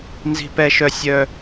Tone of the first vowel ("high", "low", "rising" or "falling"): high